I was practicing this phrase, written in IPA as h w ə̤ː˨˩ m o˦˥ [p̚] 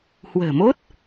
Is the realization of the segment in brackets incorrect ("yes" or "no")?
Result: yes